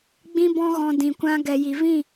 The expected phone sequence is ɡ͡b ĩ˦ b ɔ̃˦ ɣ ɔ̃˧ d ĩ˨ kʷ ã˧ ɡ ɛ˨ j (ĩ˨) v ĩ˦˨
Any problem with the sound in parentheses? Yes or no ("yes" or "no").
yes